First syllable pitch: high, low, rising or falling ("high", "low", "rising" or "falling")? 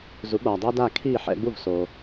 rising